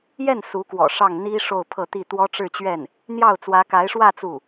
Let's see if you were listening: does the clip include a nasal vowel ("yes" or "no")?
no